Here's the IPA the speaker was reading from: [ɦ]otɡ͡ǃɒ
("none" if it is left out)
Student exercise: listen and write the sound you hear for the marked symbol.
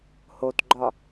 h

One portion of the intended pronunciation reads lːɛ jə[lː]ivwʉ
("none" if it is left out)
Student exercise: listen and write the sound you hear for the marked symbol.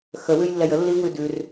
lː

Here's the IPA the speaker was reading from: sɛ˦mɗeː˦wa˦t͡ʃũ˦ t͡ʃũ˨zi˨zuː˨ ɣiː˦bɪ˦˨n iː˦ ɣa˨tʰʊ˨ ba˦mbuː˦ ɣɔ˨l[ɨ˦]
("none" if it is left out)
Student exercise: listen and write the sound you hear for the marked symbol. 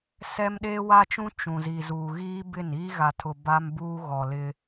ɪ˦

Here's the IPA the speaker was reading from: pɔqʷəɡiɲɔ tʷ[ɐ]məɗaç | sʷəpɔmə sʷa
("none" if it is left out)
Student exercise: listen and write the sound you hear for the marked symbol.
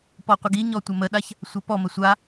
ɐ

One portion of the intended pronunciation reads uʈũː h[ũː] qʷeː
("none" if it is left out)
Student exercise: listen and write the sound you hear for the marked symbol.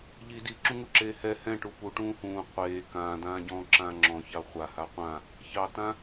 ũː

